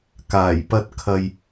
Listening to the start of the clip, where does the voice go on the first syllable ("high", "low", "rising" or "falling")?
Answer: low